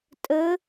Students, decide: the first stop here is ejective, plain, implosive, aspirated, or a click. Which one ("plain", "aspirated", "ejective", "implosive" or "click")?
ejective